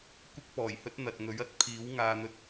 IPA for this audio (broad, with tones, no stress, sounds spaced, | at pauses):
kʷ ɪ˧ k̚ p ɔː˨˩ j h ɵ˧ t̚ n̪ ɐ˨ t̚ ŋ ɵ˨˥ ɥ ɐ˨˥ t̚ pʰ iː˨˥ w ŋ aː˨ n̪ ɵ˧ t̚